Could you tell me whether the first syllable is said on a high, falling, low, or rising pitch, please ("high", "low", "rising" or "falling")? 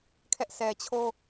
high